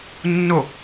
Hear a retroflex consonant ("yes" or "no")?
no